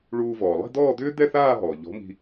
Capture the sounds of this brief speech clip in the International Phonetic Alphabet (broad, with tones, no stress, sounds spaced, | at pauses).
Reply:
ɭ uː˧ v ɔː˩ lˠ i̤˥˧ d̪ ɔː˥˧ d̪ ʏː˥ d̪ ɛ˥˧ θ aː˥˧ ɦ ɔː˩ ʎ ɔ̤˨˥ m i̤˧